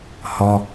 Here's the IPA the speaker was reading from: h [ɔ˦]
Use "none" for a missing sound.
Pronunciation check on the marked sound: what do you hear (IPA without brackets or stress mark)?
ɔ˦